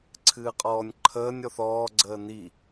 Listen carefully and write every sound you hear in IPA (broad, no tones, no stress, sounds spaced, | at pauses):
ǀʰ ɨː qʼ ɔː nʲ ǃʰ əː nʲ ɔ θ ɔː ɡ͡ǀ əː n i